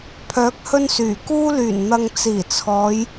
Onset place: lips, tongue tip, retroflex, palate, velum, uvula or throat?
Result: lips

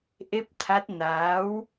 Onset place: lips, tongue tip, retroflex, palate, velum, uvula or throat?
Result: throat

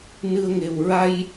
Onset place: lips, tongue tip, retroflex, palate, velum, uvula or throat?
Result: tongue tip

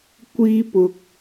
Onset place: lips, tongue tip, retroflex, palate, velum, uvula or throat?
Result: velum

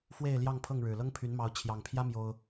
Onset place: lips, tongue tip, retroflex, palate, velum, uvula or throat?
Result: lips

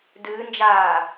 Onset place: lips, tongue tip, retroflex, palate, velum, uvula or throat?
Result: tongue tip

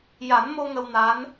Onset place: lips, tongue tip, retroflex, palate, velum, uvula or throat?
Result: palate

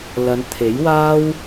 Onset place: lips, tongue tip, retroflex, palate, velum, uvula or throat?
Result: tongue tip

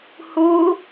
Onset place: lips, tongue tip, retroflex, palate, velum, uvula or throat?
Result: throat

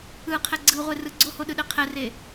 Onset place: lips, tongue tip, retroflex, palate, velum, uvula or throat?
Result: uvula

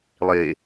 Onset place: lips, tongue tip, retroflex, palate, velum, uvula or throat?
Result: tongue tip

